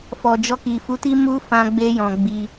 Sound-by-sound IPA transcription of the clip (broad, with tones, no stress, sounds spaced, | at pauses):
f ɔ˨ d͡ʒ ɔ˧ k i˨ f u˨˦ t i˦ m u˦ f ã˧ ɡ͡b e˧ j ɔ̃˨ ɡ͡b i˧